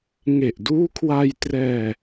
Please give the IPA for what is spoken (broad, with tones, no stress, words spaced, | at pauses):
ŋe˨˩ʔduː˦˥kʰwa˧jtrɛː˧